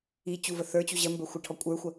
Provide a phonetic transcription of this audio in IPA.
i t͡ɕuvəθə˞t͡ɕu ʑɜmbə˞ xʷəʈʰɔkʷʼə˞xʷɐ

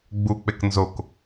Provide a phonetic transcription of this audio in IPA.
ɡ͡buk͡pek nzok

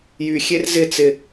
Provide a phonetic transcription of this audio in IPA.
jyxʲer zɪ t͡sɪ

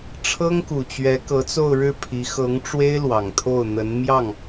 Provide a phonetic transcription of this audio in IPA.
ʈ͡ʂʰɤ˥ŋku˨˩t͡ɕɥɛ˧˥ kɤ˧˥t͡so˥˧ʊ̯ɻɻ̩˥˩pʰi˧˥ xɤ˧˥ŋʈ͡ʂwe˥ɪ̯ lwɑ˨˩ŋt̪ʰo˥˩ʊ̯n̪ə˧˥n mjɑ˥˩ŋ

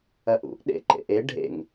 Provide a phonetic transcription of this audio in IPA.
ɐʔṵʔ ɗḛǃḛʔe ɖʱḛŋ

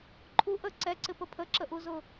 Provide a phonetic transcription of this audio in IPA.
ǃʰu ʔə ǀɛǀɪpə pʰəǁəʔuzʊ

